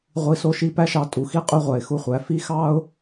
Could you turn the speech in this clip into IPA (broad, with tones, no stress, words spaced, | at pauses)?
ʁʷi˧so˧ʃi˧ pæ˥ʃɑ˧tʼu˩ xi˥qʼy˥ ʁʷæ˩ɪ̯xu˧χʷæ˩˧ fi˧˥xɑ˥ʊ̯